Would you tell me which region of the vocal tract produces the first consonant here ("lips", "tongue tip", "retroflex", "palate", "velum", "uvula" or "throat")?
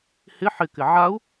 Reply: throat